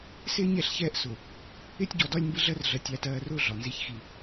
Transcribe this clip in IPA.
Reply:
s ɪː˦ ɲ ɛ˦˨ ɬ ç ɛː˦ ʔ s ʊ˨ | ɪː˦ tʲ ɟ ɔ˨ d ɒ˦ lʲ m b ɪ˦ ɮ ɜ˦ r ɮ ɜ˨ tʲ æ˨ t ɜː˨ r ʊː˦ ɮ ɒ˨ n z i˦˨ ç x i˦

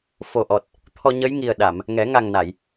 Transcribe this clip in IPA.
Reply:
f o˨˩ ʔ ɔ˨˩ t̚ | t̪ʰ ɔ˧ ɲ ə˧˥ j ŋ i˨˩ ə̯ ɗ a˨˩˨ m | ŋ ɛ˨˩˦ ŋ a˨˩ ŋ n a˨˩˨ j

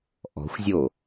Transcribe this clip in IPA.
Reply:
ʔ ɔ̤ xʷ zʲ o

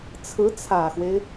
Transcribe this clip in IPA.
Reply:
t͡sʰ ɹ̩˧˥ t͡sʰ ä˨˩ x w e˦ ɪ̯

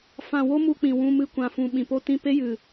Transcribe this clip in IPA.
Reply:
f ã˧ w o˦ m u˧ k͡p ĩ˨ w ũ˧ m ɨ˧ kʷ ã˨ f ũ˧ ɓ ĩ˨ p o˦ t ĩ˦ p e˦ j ɨ˨

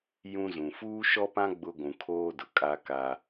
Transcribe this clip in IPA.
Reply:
j ũ˦ z ũ˨ f uː˦ ʃ ɔ˦ p ã˦ ɡ͡b ʊ˦ ɡʷ ũ˨ kʰ oː˦ d ʊ˨ kʼ a˦ k a˦

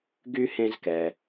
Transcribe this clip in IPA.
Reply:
ɡ y˥ h ẽ˦ z k ɛ˨

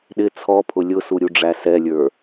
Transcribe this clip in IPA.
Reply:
ɗ ɪ t͡sʰ ɔ pʰ ʊ lʲ ʊ s u ɾʲ u ɖ͡ʐ æ s ɛ lʲ ə˞

